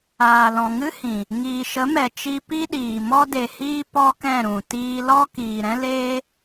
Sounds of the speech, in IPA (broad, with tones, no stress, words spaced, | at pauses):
aː˨lɔ̃˨ŋɨ˦hĩ˨ | ŋiː˨ʃə˨˦mɛ˨ t͡ʃi˧pi˦ɗiː˨ mɔ˧de˨hiː˧ pɔ˦kɛ̃˦˨ɾũ˨ tiː˧lɔ˦ kiː˨ɾɛ̃˦leː˦